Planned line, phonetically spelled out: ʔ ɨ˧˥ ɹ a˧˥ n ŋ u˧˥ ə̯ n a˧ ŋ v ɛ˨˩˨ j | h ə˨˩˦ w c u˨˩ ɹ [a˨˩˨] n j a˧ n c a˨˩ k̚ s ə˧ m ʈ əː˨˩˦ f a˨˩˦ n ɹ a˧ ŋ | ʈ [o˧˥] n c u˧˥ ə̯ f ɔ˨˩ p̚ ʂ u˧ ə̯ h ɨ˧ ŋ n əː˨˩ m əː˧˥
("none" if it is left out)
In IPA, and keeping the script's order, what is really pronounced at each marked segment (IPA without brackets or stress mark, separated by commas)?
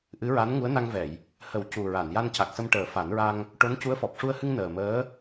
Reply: a˨˩˨, o˧˥